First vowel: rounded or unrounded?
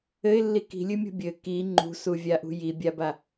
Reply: unrounded